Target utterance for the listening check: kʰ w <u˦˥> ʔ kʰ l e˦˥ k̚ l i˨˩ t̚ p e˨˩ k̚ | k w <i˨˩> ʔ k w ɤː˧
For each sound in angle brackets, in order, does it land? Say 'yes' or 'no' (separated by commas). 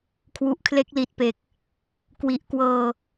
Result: no, yes